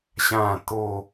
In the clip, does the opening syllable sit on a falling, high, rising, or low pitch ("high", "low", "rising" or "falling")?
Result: falling